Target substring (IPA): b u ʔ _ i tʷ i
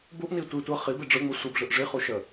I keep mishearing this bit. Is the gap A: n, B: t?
A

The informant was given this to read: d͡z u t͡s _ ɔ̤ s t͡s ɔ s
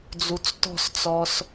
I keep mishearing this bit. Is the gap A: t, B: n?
A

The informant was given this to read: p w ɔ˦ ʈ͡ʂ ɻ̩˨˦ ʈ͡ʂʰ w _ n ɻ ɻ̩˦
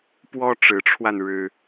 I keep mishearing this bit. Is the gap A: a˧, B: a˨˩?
A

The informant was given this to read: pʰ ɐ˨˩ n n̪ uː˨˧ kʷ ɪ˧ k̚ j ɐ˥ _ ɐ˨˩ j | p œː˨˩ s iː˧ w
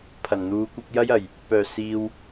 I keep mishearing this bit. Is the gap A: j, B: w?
A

